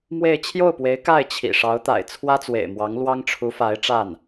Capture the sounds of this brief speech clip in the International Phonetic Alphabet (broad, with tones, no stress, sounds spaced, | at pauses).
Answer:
m w e˥˧ ɪ̯ t͡ɕʰ j o˥˩ ʊ̯ p w e˧˥ ɪ̯ k a˥˩ ɪ̯ t͡ɕʰ ḭ˨˩ ʂ ɑ˧˥ ʊ̯ t̪ a̰˨˩ ɪ̯ t͡sʰ w ä˥ t͡s w ḛ˨˩ ɪ̯ m w ɑ˧˥ ŋ l w ɑ˥ ŋ ʈ͡ʂʰ u˧˥ f a˧˥ ɪ̯ ʈ͡ʂ a˥˩ n